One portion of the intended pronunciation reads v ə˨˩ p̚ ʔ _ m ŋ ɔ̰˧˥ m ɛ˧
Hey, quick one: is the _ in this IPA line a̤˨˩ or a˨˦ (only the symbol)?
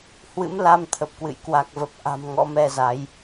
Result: a̤˨˩